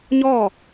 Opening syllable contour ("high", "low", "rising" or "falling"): falling